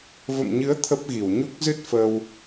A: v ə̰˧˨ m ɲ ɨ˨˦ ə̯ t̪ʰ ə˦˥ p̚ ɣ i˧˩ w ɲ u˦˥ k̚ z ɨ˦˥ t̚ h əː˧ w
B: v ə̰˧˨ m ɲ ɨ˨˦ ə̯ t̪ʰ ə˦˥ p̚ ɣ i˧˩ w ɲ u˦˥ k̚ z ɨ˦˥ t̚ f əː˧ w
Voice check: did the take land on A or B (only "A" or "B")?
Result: B